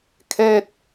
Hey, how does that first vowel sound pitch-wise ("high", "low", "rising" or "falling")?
falling